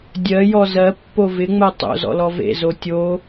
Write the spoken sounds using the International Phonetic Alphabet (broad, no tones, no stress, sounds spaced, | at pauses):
dʲ ɜ j ɔ z ɜ pː o v ɪ ŋ͡m ɜ tˤ o̰ z ɔ̰ l ɔ v ḛ z o tʲ o